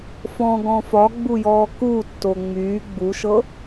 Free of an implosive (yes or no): yes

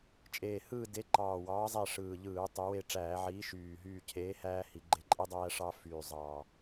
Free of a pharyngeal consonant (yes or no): no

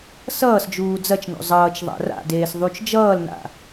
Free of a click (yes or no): yes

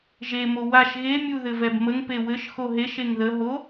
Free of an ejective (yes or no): yes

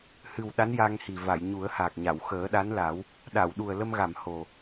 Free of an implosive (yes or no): no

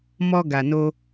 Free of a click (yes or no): yes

